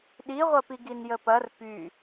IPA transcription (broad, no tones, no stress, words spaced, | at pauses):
ɗiʁʷɐpi ɡinjəpɐr py